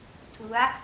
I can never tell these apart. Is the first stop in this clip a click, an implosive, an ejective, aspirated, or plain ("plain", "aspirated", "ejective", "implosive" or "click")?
aspirated